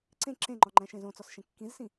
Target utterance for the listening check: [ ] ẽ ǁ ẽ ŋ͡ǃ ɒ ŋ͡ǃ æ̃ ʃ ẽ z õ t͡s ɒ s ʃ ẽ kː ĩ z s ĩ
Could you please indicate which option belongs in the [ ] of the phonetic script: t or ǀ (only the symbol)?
ǀ